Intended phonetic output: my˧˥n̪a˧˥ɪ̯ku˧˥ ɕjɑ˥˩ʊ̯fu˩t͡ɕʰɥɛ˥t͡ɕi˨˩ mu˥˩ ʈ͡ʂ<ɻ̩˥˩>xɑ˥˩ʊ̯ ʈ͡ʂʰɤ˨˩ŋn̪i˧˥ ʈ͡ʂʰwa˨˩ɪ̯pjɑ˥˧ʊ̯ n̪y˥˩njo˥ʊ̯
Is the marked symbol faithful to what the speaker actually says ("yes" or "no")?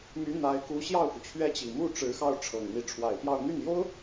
no